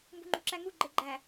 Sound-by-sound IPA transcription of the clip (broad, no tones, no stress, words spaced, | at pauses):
mbṳŋ͡ǃṳǁæŋu ɡ͡ǃeɡ͡ǃæ